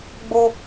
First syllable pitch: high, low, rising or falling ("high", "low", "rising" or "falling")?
high